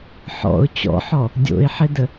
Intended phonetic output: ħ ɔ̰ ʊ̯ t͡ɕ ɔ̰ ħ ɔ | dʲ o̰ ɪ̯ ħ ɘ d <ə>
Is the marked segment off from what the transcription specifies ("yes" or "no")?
no